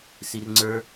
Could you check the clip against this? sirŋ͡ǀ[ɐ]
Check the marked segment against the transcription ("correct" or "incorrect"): incorrect